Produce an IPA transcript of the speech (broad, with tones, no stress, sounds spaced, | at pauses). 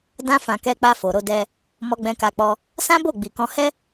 d ã˧ f ã˨ k ɛ˧ k͡p a˧ f o˨ ɾ o˧ d ɛ˧ | m ɔ˧ ɡ͡b ɛ̃˧ k a˧ k͡p ɔ˧ | s ã˦ b o˦˨ ɡ͡b i˨ k ɔ̃˧ h ɛ˦